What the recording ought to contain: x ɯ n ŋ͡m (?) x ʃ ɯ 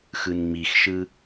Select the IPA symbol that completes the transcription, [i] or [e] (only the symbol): i